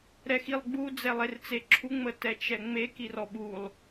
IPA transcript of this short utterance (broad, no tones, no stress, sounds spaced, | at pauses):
ɾ ɛ x i lˠ ɡ͡b u d͡z ɛ lˠ e r t͡s e ǁʰ u ŋ͡m ə t ɛ t͡ʃ ɛ ŋ͡m e k i r ɔ ɓ u lˠ